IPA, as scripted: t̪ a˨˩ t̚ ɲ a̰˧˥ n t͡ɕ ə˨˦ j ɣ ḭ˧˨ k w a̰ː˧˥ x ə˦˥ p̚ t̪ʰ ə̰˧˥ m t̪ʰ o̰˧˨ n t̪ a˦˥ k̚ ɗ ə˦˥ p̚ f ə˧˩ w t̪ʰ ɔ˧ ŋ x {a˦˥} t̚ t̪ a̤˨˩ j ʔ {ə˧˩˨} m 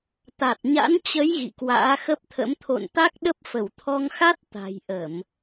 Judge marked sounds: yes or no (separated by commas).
yes, yes